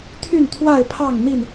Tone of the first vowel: falling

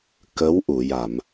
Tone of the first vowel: rising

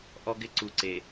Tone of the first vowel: high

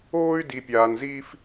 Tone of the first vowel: high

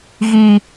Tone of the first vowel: low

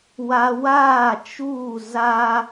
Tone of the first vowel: high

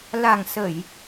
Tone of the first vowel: low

